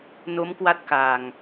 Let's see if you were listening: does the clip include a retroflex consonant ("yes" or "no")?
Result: no